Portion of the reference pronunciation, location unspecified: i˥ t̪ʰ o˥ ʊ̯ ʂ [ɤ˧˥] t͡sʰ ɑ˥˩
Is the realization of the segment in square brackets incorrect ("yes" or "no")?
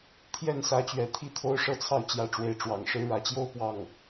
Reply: yes